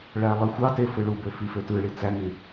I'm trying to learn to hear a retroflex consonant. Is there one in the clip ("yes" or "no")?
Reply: yes